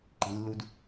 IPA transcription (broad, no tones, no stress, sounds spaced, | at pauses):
ǃ i̤ lː u d